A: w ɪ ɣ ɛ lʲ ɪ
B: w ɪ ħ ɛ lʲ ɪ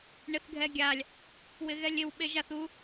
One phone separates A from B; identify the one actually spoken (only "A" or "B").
A